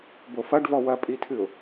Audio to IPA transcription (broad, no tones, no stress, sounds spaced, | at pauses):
b o f ɐ ɖ v ɔ w ɐ pʼ i tʰ ɨ ʊ̯